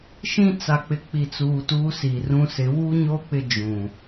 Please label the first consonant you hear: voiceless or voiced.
voiceless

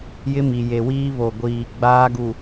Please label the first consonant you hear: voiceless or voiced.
voiced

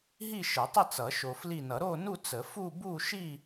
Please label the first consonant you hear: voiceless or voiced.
voiced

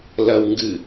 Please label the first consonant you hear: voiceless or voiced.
voiced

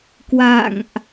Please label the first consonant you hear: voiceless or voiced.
voiceless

